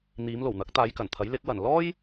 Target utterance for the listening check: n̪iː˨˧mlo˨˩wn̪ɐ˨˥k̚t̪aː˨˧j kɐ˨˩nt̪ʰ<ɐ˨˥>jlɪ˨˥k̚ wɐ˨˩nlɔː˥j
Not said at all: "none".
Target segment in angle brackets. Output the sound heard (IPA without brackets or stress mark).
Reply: ɐ˨˥